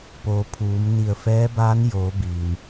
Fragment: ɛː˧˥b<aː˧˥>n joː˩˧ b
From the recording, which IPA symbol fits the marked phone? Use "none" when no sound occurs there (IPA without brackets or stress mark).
aː˧˥